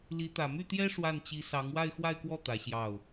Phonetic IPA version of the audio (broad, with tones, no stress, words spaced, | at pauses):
li˧˥t̪ä˨˩ my˥˩t̪jɛ˥ ʂwa˥˩nt͡ɕi˧˥ sɑ˧˥ŋ wa˥˧ɪ̯xwa˥˧ɪ̯kwɔ˥˩ t̪ä˧˥ɕjɑ˥˩ʊ̯